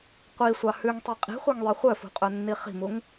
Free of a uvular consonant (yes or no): no